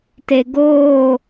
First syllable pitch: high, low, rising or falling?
low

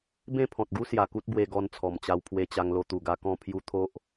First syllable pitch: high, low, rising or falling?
falling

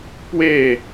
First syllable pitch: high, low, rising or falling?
falling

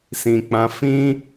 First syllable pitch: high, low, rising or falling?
low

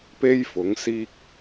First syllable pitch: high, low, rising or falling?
high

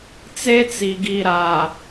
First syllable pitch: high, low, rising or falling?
high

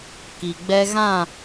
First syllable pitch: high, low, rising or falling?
low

